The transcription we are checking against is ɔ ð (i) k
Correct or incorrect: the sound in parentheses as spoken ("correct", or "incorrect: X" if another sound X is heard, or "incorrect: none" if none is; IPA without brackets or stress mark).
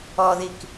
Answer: correct